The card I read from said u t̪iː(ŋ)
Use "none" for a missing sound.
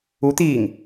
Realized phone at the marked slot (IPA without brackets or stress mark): ŋ